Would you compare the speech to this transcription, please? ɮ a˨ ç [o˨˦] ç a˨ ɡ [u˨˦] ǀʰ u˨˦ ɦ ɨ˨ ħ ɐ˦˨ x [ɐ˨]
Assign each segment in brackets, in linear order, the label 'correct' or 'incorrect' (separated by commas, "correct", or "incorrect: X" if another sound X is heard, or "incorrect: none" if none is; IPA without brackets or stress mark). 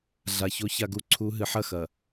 correct, incorrect: u˨, correct